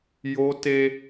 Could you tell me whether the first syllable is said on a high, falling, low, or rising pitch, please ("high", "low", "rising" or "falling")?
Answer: high